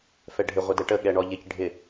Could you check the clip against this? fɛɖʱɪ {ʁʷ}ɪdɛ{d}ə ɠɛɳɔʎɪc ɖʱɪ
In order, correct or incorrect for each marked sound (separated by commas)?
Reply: correct, incorrect